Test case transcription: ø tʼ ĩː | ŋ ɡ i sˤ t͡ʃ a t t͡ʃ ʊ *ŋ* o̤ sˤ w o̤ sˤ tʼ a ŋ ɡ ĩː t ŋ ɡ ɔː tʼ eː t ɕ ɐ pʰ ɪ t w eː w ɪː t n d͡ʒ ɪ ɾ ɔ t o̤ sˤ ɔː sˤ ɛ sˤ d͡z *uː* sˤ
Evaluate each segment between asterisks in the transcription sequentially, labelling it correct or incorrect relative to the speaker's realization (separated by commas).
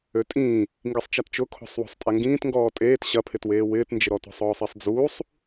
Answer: incorrect, correct